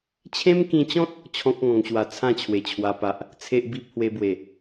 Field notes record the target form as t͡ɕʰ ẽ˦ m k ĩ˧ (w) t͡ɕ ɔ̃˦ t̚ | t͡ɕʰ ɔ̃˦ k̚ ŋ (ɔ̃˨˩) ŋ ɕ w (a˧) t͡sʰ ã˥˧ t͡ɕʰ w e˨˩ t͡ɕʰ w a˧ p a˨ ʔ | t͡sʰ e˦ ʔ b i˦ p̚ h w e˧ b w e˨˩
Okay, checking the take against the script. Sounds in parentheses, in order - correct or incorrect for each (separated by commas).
incorrect, incorrect, correct